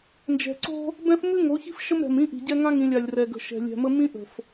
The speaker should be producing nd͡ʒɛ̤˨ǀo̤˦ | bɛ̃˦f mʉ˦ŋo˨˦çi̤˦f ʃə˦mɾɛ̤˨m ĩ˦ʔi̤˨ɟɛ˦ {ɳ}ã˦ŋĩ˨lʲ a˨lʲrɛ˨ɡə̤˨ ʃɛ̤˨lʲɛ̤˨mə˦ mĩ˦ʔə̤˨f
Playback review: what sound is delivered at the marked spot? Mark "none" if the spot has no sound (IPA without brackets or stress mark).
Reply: ŋ